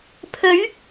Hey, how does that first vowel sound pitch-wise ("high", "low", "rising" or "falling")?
rising